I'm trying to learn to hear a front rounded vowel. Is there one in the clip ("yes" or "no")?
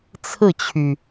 yes